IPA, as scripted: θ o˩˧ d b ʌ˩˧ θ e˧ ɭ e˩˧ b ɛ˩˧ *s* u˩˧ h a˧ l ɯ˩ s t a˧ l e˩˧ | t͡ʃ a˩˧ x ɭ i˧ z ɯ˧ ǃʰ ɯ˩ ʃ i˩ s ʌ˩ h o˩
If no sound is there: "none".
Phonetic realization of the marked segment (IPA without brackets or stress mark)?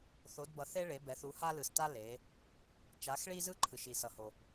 θ